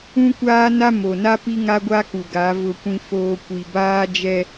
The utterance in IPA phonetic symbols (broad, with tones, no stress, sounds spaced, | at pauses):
ũ˦ kʷ aː˦ n a˦ m o˨ n a˦ p i˦ ŋ a˦ ɡʷ a˦ k u˨ ɡ a˨˦ v ʊ˦ kʷ ĩ˦ f oː˦ kʷ i˨ b aː˦ d͡ʒ ɛ˦